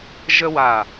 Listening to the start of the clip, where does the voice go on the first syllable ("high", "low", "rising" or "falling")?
high